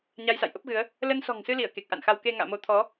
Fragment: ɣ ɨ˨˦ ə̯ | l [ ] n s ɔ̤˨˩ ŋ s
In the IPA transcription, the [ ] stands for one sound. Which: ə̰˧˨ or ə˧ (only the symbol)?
ə˧